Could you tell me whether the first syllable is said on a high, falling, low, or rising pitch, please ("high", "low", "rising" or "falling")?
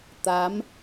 rising